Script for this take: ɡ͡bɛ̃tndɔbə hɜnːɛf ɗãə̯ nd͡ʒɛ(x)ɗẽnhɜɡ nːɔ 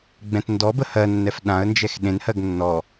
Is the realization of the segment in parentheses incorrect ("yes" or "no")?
no